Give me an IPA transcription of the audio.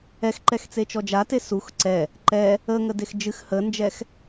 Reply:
ɛ x ǃ ɛ x t͡s e t͡ʃ ɔ d͡ʒ a t e s u x ǀ ɛ | ǃ ɛ | ə ŋ ə d e x d͡ʒ ɨ x h ə n d͡ʒ ɛ x

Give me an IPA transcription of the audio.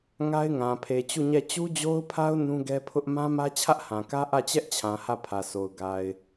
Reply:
ŋ a˦ ɪ̯ ŋ ã˨ pʰ e˨ t͡ɕ u˦˨ ɲ ɛ˦˨ t͡ɕ u˦ d͡ʑ o˦ ʊ̯ pʰ a˦ ʊ̯ n ũ˦ ɡ ɛ˦ pʰ ʊ˦ ʔ m ã˦ m ä˦ t͡ɕʰ ä˦ ʔ h ã˨ k ä˦ ʔ ä˦˨ t͡ɕ ɛ˦ ʔ t͡ɕʰ ã˨ h ä˦˨ pʰ ä˨ sʰ o˨ ʊ̯ ɡ a˨ ɪ̯

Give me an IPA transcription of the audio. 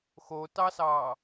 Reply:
x o t ɑ s ɑ

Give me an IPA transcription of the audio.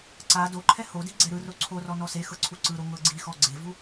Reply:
ǀ a d o ǃʰ ɛ h o d i ɡ͡ǀ ɛ ɾ ɯ r o ǀʰ o r ɔ n ɔ s e x ɤ ǀʰ u ǀ ɯ ɾ o ŋ ɤ ɡ͡ǀ i x ɔ ɡ͡ǀ e v u

